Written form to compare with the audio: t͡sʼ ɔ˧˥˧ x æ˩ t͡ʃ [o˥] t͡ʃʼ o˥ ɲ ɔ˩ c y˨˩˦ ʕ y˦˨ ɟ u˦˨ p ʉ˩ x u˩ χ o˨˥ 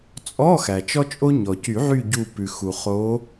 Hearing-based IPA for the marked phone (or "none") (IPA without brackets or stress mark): ɔ˥